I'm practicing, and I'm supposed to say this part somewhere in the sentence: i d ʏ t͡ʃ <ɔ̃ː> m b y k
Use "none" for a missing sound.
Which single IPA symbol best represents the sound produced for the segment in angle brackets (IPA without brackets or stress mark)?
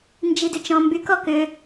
ɔ̃